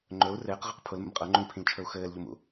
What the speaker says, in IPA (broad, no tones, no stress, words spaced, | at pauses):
ŋ͡ǃɵu̯ rɘːqʁɤq pʰʊlmə̰m qʼɤŋ͡ǃũlpʰĩlt͡ʃʰɵu̯ xɘːlʎʊmṵ